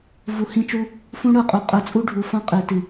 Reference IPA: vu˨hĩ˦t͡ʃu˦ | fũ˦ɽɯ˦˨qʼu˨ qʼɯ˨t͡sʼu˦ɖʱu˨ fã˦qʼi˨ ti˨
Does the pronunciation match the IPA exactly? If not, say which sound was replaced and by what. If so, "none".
none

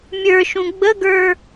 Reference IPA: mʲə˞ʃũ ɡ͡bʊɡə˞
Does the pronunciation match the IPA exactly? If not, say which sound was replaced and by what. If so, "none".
ʊ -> ə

